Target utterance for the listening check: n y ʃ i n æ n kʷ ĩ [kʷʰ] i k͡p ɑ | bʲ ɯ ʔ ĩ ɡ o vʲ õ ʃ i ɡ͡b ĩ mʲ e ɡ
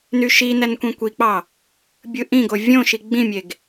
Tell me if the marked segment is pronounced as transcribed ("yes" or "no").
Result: no